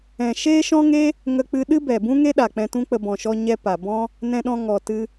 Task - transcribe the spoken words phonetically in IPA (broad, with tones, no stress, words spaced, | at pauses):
ɛ̃˨ʃeː˦ʃɔ̃˦ŋe˦ | ŋə˦k͡pɨ˦ ɗɨ˦bɛ˨ bũ˦ŋe˦ɗa˨ k͡pɛ̃˧tũ˦k͡pə˧ bɔ̃˨ʃɔ˧ ɲɛ˦pa˨ bɔ̃˦ | nɛ̃˧ɗɔ̃˧ ŋɔ˨tɨ˧